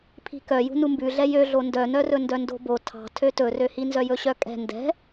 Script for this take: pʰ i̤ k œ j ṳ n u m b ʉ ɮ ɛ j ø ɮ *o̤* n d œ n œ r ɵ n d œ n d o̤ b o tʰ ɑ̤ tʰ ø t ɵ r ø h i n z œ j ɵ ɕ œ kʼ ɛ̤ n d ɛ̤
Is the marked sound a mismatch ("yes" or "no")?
yes